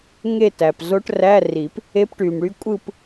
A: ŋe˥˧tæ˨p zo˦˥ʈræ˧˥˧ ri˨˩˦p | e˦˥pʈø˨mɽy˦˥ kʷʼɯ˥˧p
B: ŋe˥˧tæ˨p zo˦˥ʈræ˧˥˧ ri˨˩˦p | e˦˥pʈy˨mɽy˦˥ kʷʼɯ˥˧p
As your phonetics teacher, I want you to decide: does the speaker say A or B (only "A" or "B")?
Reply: B